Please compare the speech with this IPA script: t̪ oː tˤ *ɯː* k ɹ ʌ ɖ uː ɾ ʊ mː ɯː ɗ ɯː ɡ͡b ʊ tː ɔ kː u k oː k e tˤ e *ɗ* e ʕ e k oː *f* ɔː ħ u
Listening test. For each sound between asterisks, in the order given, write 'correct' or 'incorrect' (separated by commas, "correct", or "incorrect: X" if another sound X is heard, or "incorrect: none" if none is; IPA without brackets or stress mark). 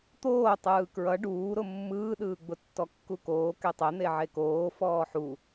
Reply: correct, incorrect: n̪, correct